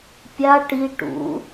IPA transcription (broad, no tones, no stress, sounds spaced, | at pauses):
pʲ a ʈ i ʈ ṵ